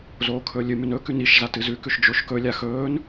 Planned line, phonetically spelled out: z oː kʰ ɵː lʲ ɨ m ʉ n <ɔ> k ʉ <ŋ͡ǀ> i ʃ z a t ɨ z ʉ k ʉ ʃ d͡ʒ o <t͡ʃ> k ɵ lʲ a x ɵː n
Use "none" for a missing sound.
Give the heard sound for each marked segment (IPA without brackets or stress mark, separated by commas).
ɵ, n, ʃ